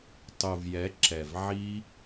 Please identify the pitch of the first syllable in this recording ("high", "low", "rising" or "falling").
low